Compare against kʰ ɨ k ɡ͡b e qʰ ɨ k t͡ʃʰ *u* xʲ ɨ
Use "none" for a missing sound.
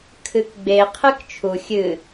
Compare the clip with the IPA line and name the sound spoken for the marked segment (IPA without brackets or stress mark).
u